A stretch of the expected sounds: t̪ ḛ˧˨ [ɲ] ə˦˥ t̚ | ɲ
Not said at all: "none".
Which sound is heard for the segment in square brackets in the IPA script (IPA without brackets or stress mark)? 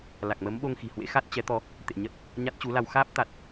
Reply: ɲ